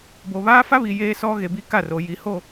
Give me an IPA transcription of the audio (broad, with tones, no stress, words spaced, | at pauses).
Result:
bo˨βaː˦fa˦βi˨ jeː˦sɔ˦ ɣe˨bi˦ka˦˨ro˨ ji˨ho˦˨